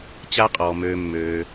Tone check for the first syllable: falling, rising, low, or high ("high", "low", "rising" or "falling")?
high